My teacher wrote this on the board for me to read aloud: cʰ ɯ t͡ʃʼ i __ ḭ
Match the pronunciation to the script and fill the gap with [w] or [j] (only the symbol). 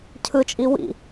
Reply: w